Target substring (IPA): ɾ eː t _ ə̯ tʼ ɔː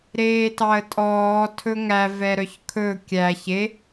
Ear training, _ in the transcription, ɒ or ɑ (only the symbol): ɑ